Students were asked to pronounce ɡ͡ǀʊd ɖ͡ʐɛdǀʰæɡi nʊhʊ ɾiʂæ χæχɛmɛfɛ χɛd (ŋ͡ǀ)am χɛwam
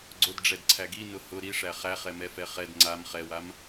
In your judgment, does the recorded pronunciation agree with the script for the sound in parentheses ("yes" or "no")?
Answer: yes